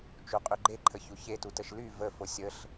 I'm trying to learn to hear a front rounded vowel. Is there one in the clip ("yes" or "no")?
yes